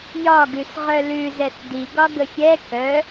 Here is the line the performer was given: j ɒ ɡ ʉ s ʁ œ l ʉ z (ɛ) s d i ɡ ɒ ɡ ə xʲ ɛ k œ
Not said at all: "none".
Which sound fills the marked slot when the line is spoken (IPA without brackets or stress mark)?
ɛ